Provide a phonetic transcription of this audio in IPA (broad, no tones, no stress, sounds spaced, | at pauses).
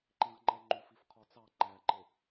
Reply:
ǃ ĩ ʁ ŋ͡ǃ ɛ ŋ͡ǃ u f i f qʰ ɔ t͡s ɑ ŋ͡ǃ æ ǃ ɪ